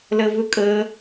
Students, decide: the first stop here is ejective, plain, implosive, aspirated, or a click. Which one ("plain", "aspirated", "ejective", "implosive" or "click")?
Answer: ejective